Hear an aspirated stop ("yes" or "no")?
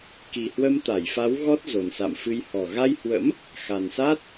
no